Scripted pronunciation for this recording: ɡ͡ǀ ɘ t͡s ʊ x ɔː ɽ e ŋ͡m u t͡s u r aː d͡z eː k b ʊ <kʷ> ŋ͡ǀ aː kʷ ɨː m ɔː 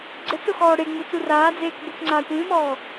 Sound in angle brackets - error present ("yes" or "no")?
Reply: yes